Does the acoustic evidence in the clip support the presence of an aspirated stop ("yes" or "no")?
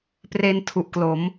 yes